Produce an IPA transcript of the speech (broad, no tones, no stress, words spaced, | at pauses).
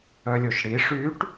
œlʲoʃɽi ʂyʈ